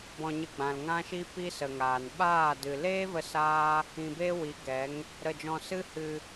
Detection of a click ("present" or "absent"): absent